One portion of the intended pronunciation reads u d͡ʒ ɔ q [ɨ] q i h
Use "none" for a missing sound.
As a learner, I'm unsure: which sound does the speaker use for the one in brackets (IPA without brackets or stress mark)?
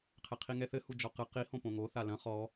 ɨ